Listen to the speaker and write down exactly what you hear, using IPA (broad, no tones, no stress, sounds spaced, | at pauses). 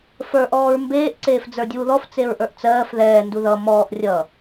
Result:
f ə˞ ʔ ɔː ɹ m b eː ʔ ǀ eː f d͡z ə˞ dʲ uː ð ɔ f t͡s e ɹ ʔ ə˞ ʔ t͡s ɜː f ð ɛː n d u ð ʌ m ɔː ʔ rʲ ʌ